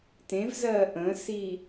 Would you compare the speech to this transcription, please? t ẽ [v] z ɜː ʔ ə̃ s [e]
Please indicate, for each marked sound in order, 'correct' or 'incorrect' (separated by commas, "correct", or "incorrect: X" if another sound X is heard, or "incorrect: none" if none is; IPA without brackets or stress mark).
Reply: correct, incorrect: i